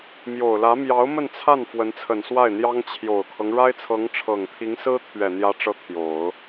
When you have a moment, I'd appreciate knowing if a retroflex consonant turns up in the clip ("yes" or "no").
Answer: yes